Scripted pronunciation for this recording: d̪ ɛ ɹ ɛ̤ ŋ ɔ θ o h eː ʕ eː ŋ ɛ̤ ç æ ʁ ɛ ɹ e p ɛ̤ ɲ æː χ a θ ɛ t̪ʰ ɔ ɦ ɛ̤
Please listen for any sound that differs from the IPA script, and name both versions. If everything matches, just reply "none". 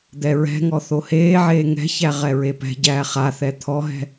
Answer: ɲ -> ɟ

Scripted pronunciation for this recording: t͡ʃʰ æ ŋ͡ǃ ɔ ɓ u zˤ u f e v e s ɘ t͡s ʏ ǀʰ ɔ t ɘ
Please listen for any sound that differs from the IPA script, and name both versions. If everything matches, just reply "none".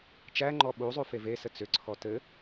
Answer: t͡ʃʰ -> t͡ʃ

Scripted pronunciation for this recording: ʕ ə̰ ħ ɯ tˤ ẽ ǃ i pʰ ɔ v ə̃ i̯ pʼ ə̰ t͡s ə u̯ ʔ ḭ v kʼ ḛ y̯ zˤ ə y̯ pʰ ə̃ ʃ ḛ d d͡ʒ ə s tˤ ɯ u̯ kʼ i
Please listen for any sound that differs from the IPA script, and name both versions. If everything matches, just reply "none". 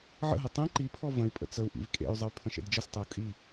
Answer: ħ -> ɦ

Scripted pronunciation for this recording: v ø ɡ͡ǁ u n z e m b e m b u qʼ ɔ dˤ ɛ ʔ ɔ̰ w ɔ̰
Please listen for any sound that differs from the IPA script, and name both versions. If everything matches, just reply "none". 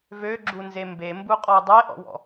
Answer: none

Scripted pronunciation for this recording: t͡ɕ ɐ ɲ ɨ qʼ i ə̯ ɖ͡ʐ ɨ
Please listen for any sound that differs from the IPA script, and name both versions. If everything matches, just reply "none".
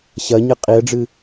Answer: t͡ɕ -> ɕ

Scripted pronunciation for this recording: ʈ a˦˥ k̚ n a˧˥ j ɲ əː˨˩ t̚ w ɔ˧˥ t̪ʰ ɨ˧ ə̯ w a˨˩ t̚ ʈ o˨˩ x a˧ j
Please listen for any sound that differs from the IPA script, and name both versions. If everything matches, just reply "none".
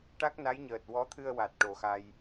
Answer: none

